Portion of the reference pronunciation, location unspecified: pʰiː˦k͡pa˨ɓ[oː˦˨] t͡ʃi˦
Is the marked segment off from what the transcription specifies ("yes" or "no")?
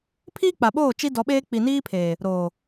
no